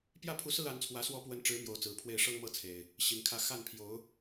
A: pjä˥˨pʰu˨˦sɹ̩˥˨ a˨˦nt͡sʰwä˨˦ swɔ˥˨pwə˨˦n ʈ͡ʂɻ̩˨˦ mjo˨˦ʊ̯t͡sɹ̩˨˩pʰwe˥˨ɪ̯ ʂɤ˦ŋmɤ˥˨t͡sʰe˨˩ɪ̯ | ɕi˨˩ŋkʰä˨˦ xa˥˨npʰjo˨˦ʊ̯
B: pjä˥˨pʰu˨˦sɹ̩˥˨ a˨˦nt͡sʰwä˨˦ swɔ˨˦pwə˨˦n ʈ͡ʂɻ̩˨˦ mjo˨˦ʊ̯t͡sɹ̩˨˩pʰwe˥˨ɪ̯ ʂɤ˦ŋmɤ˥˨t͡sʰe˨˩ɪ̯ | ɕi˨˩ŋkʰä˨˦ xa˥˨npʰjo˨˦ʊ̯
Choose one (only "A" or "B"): B